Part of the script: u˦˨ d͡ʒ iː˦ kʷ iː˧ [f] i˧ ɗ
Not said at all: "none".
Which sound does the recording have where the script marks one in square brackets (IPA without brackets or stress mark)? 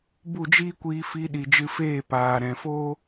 f